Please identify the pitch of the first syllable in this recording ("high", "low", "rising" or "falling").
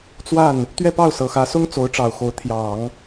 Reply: falling